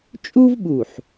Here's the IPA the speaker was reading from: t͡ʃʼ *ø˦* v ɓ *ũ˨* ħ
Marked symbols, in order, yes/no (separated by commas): no, no